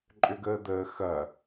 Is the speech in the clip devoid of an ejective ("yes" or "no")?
no